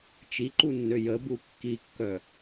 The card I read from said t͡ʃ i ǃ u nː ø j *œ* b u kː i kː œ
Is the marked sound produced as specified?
no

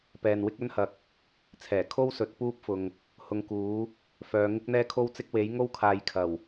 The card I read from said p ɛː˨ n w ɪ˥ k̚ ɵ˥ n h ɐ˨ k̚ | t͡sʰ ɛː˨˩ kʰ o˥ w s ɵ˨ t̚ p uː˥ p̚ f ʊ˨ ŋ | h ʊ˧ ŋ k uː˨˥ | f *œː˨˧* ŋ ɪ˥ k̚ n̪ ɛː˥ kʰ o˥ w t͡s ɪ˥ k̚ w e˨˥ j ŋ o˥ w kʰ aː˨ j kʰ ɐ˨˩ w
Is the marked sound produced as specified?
yes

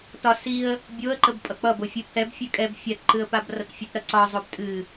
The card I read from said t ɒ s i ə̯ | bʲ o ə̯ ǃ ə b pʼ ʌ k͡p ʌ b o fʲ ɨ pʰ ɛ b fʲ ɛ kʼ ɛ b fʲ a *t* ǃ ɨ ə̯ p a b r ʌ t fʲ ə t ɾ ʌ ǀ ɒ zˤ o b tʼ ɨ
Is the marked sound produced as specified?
yes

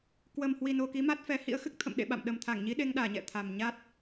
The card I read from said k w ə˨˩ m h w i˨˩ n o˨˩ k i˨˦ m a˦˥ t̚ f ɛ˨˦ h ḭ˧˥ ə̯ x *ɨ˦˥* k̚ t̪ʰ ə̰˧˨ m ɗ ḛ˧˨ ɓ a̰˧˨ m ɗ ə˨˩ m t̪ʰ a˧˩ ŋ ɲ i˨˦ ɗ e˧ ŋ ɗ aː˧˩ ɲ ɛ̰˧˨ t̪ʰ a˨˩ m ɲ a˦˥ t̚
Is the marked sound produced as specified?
yes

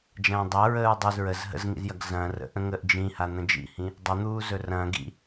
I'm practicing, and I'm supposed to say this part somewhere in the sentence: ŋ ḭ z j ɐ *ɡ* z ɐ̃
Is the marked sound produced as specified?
yes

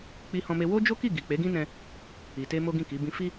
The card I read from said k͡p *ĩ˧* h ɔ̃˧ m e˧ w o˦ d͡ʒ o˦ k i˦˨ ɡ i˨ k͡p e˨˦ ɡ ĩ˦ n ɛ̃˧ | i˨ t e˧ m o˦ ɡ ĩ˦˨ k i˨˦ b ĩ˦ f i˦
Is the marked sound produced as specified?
no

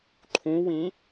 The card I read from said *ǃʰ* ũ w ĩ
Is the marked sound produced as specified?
yes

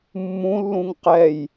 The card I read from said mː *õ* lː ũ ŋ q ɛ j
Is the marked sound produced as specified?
no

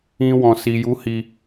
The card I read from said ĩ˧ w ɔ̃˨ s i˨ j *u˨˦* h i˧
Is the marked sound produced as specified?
yes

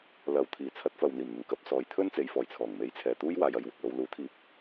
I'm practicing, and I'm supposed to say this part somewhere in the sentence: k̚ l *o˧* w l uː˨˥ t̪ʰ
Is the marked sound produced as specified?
yes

